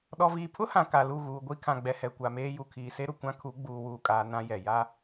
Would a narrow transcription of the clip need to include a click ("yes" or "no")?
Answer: no